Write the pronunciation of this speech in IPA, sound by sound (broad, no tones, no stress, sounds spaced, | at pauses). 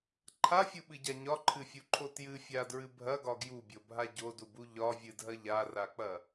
ǃʰ a fʲ u ɓ ɨ ɟ a ɲ ɒ ǃʰ ɨ fʲ u ǃʰ o t j ɨ fʲ a d ɹ ɨ bʱ ɐ ɡ ɒ ɡ j u bʲ o bʱ a ɟ o d u b u ʎ ɒ vʲ ɨ dʱ ɐ ʎ a r a k͡p ɐ